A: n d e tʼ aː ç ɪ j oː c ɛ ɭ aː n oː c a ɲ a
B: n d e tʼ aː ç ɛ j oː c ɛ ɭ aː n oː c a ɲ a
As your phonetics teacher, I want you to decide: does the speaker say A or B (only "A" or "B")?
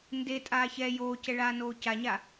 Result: B